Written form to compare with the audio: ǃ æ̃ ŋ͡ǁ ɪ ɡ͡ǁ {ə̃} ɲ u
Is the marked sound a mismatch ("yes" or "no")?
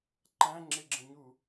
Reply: no